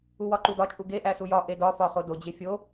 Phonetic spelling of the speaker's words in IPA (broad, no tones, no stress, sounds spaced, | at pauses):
u w ɒ ǃ u d ɒ t͡ʃʼ u ɡ e ʔ æ s u j ɒ ʔ e d ɒ f ɒ χ o d o d͡ʑ e fʲ o